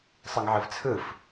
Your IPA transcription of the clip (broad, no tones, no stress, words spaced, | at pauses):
sˤɯŋʕɯvt͡sʰɯf